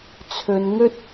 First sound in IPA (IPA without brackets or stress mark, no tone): t͡sʰ